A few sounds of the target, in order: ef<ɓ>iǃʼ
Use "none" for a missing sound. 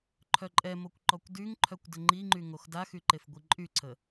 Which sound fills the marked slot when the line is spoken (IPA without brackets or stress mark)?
ɡʷ